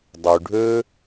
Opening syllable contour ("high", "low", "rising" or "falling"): low